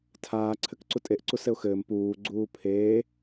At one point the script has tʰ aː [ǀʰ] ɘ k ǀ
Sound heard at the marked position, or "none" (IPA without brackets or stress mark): ǀʰ